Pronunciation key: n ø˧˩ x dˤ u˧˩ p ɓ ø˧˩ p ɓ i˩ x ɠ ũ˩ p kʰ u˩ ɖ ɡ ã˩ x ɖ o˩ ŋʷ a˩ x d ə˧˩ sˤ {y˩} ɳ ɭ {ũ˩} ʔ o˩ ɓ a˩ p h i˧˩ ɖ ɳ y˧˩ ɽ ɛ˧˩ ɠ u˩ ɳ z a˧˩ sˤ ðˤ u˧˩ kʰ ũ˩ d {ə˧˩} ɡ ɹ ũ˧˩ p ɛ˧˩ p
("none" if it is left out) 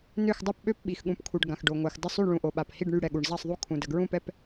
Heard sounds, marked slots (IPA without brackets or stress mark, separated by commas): y˧˩, ũ˩, ə˩